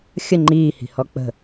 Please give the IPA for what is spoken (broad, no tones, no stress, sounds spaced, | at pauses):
xʲ ə ŋ͡ǃ iː h i̤ h ɔ k͡p ə̤